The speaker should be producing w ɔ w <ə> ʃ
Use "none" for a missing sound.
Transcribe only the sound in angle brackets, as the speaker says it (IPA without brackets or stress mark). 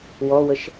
ə